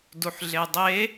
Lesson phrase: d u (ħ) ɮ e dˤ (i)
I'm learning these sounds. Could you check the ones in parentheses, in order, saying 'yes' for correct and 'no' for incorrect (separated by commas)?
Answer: yes, no